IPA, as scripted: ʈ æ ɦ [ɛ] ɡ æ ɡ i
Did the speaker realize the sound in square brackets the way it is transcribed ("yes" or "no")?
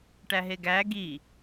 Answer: no